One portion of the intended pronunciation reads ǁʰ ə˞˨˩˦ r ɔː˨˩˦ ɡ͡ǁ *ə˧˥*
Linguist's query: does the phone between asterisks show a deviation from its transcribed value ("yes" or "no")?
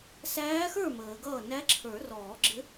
yes